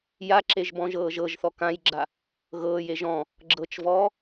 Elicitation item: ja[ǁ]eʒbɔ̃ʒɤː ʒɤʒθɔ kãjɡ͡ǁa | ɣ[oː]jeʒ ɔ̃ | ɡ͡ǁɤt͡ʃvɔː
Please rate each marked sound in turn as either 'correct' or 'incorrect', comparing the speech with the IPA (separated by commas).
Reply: correct, incorrect